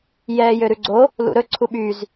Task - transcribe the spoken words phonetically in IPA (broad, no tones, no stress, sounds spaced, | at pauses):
j ɛː j ø ɾ ʉ ɡ͡ǀ o | l ṵ ɾ ɵ ǀʰ u ɓ y z